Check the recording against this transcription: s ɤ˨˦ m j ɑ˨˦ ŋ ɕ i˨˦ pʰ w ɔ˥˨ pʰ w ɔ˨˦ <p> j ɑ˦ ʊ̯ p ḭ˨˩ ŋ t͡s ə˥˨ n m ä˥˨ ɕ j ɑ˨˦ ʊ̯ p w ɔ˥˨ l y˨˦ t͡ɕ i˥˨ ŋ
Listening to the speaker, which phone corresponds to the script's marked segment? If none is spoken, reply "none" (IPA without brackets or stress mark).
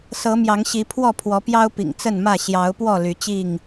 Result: p